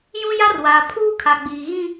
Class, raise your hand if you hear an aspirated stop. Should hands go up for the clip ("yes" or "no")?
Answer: yes